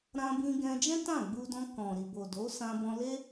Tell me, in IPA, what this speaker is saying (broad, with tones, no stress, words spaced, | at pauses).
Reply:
ɾã˧bĩ˧ɡɛ̃˧d͡ʒɛ̃˦ tã˦˨ɡ͡bu˧dɔ̃˧ kɔ̃˨ɾi˨bo˨ do˨˦sã˧bɔ̃˧le˦